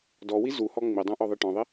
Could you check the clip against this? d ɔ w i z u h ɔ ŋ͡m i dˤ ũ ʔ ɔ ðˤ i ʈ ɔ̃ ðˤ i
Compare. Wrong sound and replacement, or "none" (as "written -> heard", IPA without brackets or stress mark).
none